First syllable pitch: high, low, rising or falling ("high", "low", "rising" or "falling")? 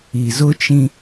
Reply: low